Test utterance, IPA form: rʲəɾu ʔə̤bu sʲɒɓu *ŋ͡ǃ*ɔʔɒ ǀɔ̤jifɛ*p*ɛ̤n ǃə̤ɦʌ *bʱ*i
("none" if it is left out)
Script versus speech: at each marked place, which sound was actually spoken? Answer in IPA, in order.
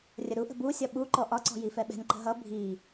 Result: ǃ, ɓ, bʱ

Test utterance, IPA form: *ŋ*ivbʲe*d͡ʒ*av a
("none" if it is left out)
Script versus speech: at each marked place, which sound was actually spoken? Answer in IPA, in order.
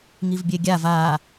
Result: ŋ, ɡʲ

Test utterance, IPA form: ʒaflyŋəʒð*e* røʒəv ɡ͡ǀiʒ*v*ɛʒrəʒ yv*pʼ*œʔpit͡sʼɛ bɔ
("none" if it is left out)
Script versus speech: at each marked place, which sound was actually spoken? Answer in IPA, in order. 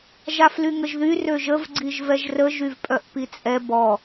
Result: y, v, pʼ

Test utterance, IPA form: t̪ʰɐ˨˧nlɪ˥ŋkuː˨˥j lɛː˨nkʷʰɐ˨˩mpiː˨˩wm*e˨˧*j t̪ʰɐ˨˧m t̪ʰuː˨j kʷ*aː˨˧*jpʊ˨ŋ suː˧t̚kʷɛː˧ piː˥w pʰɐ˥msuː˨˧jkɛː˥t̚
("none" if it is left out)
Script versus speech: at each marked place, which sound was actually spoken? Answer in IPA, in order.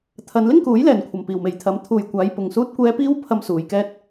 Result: e˨, aː˨˧

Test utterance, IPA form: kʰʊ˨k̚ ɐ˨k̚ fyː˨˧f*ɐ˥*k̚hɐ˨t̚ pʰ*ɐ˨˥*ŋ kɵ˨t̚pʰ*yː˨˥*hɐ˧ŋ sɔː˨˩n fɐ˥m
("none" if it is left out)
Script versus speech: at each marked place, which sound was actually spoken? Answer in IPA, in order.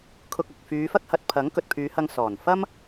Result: ɐ˥, ɐ˨˥, yː˨˧

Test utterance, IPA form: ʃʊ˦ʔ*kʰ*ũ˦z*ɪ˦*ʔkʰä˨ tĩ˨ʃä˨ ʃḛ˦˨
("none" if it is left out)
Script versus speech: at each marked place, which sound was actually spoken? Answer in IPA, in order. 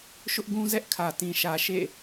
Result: ɡ, ɛ˦

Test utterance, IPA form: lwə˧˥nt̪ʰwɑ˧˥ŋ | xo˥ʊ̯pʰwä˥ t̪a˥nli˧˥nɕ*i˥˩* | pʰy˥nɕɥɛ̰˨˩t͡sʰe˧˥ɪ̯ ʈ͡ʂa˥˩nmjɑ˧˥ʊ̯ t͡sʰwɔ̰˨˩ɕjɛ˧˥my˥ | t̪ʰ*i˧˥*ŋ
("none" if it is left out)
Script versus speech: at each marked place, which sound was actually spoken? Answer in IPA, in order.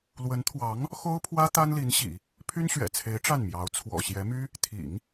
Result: ḭ˨˩˦, ḭ˨˩˦

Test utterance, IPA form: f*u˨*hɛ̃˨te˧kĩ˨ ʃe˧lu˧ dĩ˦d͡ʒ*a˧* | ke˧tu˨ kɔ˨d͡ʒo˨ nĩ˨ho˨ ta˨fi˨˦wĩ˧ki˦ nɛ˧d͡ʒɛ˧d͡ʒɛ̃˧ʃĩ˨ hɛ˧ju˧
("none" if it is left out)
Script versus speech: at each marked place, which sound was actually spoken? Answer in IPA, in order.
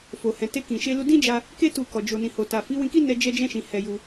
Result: o˨, a˧

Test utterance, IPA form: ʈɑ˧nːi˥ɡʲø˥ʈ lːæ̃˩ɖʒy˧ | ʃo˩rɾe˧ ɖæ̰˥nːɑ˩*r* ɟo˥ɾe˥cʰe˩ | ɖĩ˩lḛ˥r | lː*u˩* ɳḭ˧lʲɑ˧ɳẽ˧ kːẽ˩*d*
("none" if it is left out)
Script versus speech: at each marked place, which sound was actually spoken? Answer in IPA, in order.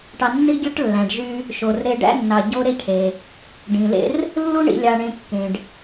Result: none, u˥, ɖ

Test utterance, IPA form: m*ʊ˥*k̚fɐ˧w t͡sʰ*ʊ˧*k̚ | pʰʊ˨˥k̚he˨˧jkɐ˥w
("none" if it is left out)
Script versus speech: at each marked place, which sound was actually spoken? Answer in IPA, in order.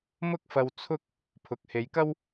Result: ʊ˥, ʊ˥

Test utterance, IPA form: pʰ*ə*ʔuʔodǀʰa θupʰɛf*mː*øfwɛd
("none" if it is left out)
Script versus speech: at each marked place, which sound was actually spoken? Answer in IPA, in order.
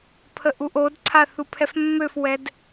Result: ə, mː

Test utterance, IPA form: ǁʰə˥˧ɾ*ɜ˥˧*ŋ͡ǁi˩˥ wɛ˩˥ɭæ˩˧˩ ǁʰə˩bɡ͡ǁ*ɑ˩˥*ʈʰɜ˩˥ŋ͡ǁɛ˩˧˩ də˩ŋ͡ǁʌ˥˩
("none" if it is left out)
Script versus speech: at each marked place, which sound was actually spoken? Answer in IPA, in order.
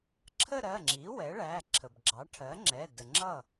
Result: ɜ˩˧˩, ɑ˩˥

